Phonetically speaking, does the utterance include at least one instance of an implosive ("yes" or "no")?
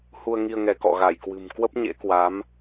no